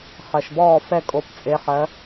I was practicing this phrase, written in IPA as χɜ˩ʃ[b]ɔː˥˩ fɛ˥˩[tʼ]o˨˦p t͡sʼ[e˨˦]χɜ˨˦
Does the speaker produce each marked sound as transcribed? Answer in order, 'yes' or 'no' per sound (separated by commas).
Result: yes, no, yes